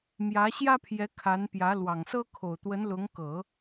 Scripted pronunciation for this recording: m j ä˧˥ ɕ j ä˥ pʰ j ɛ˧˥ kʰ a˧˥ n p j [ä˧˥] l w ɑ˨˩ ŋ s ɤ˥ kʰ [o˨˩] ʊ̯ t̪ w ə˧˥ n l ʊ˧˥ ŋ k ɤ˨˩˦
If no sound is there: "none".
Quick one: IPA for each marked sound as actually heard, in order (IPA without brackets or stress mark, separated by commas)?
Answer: ä˧˥, o˨˩